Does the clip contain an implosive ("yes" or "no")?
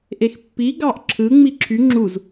no